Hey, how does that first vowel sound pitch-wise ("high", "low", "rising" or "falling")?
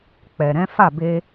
low